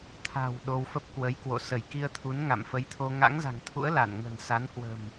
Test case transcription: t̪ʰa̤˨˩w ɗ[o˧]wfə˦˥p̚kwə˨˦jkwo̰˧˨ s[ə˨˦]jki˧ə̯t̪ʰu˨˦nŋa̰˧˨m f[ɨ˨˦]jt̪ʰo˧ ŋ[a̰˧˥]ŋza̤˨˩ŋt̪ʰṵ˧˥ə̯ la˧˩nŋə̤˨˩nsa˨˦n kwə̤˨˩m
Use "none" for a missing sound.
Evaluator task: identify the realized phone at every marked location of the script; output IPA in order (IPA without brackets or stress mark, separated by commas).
o˧, ə˧˩, ə˨˦, a̰˧˥